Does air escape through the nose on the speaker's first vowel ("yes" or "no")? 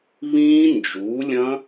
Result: yes